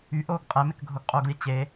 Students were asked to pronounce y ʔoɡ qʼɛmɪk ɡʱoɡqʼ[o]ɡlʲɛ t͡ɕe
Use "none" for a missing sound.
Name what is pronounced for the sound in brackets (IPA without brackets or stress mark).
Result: o